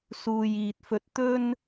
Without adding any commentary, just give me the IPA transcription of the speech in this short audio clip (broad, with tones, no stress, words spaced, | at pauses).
suː˨jiː˨t̚fɵ˧t̚ t̪ɵ˥n